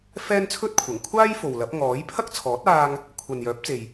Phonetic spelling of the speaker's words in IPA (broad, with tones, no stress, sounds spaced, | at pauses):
f ɛː˥ n t͡sʰ ɵ˥ t̚ kʷʰ ɐ˨˩ ŋ kʷʰ aː˥ j f o˨ w l ɐ˨˥ p̚ ŋ ɔː˨˥ j pʰ ɐ˥ k̚ t͡sʰ ɔː˨˥ t̚ aː˧ ŋ | kʷʰ ɐ˨ n j œː˨˥ p̚ t͡s e˨ j